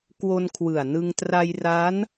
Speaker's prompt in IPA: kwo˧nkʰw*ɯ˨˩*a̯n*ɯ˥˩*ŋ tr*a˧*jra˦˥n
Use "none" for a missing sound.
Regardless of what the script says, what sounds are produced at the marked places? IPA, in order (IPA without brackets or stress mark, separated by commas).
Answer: ɯ˨˩, ɯ˧, a˧